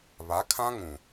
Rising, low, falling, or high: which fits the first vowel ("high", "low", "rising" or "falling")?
rising